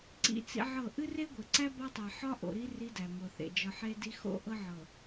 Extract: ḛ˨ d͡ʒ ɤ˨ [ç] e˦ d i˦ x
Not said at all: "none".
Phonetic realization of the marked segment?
ħ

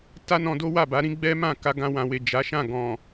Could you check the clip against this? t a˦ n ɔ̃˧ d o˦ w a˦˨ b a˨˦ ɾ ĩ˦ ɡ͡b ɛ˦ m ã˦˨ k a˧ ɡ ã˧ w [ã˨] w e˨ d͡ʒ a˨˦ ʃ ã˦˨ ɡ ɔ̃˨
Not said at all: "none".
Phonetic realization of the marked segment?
ã˨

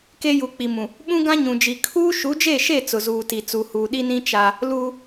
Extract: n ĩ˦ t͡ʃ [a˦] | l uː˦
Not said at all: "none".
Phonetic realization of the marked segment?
a˦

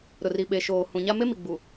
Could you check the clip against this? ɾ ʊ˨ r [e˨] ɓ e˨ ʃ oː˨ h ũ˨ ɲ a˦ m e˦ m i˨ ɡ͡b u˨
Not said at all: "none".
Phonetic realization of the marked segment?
i˨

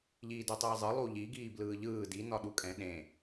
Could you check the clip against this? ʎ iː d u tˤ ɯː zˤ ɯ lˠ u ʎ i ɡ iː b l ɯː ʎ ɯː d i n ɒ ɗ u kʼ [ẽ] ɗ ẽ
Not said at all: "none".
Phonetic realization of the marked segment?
ɛ̃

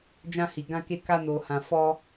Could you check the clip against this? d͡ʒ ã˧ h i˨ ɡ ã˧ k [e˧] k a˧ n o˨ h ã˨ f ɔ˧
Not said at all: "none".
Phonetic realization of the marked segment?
e˧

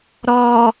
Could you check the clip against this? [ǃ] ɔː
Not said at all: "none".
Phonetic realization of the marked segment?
ɾ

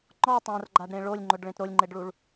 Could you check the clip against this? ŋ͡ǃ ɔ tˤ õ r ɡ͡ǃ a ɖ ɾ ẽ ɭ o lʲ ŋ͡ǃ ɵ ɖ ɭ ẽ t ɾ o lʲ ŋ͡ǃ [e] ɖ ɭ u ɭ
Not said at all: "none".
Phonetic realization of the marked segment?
e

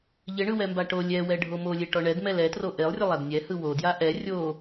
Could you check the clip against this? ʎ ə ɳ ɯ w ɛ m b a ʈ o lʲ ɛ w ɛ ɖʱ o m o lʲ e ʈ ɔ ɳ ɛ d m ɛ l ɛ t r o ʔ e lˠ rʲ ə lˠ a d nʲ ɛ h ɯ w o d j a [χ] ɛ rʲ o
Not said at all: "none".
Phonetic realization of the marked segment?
ʔ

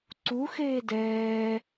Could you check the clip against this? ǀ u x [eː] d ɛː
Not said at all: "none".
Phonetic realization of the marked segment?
eː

